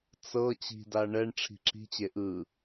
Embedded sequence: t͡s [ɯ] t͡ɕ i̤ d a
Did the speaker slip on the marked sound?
yes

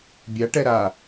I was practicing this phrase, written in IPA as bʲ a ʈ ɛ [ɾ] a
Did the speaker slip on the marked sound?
no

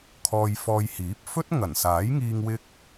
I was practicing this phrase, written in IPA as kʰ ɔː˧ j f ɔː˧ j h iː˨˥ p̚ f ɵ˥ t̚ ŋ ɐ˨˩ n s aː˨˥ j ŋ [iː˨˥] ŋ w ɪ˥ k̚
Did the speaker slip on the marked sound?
yes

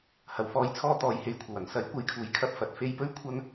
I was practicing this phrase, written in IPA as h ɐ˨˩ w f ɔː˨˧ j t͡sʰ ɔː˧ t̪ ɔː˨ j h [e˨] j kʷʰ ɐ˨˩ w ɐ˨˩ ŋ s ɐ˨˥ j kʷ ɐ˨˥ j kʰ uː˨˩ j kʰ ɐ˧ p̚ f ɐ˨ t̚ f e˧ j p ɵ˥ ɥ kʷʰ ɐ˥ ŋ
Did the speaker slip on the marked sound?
no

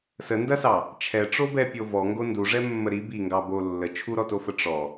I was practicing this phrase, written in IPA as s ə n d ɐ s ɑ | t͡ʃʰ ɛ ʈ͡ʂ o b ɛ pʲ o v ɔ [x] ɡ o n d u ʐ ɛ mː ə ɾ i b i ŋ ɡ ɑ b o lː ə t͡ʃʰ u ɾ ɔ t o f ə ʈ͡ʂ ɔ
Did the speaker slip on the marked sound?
yes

